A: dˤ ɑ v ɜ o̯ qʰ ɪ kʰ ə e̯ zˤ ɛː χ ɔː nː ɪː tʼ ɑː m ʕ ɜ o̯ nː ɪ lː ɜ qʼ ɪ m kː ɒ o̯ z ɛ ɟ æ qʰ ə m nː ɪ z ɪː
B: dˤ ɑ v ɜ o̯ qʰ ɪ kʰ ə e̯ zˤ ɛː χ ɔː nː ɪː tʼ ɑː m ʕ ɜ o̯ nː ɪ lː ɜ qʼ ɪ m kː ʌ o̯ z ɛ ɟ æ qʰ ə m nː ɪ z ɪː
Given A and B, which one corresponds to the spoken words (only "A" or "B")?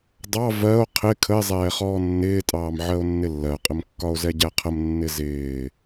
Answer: A